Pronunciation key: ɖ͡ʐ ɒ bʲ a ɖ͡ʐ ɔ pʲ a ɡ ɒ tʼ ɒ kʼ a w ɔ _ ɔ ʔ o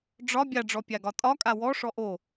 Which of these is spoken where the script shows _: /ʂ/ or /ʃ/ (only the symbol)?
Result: ʂ